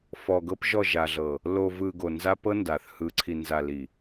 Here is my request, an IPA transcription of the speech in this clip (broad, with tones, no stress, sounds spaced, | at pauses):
f ɔ˨ ɡ ɤ˦ p ʒ ɔ˦˨ ʒ a˨ ɮ ɤ˨ | l o˨ v ɯ˨ ɡ o˨ n z a˦ p ɤ˦ n d a˨ θ h ɯ˨ ǀʰ i˨ n z a˨ l i˨